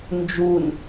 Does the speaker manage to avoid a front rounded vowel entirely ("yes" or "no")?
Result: yes